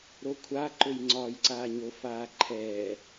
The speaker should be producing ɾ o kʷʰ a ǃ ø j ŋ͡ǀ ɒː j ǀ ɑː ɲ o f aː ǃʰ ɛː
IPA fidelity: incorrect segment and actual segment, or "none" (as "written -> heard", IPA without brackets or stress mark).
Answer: ɑː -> aː